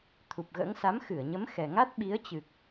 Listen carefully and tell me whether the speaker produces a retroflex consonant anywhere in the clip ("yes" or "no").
no